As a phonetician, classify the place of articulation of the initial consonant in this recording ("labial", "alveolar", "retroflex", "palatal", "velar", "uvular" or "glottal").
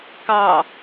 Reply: velar